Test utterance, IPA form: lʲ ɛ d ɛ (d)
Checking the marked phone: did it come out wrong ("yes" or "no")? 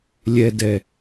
yes